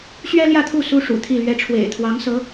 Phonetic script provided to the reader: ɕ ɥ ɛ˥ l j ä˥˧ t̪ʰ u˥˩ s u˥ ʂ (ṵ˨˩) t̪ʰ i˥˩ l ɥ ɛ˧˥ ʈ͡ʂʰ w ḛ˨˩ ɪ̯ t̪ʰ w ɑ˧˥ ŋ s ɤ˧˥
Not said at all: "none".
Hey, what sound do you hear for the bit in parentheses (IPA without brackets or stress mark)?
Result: ṵ˨˩